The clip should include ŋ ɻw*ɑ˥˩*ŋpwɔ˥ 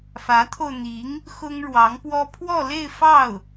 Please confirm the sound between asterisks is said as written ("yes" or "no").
no